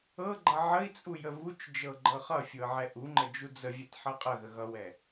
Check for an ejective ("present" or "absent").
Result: present